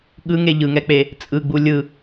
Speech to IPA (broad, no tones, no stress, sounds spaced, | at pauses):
ɠ ɯ ŋ e ʎ ɯ ŋ ɛ k͡p e | t͡sʼ ɯ ɡ͡b u lʲ ɯ